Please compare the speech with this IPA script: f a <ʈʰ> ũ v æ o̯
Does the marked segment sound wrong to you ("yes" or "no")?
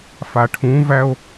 no